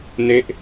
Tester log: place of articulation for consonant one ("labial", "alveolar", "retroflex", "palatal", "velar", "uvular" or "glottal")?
alveolar